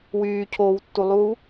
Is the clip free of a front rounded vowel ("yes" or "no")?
no